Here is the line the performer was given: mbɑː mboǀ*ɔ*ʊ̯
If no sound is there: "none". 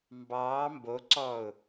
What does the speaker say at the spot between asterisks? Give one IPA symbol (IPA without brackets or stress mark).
ɔ